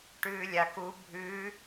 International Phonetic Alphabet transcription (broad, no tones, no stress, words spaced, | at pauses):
ʈʉːlʲak u bʱʉ